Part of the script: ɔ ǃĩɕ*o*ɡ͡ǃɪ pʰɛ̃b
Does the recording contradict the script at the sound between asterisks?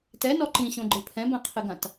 yes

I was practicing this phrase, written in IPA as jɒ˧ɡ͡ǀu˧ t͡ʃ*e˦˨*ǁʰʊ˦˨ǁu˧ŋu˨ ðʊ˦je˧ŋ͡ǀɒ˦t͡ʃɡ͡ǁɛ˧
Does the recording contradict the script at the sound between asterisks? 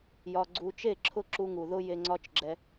no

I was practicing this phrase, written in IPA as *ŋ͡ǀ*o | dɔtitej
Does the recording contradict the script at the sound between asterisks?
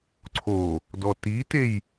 yes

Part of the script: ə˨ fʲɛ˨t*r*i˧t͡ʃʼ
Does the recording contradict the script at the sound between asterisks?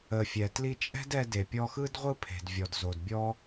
yes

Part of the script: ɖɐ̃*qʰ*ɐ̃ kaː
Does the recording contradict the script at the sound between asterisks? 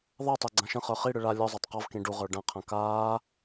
no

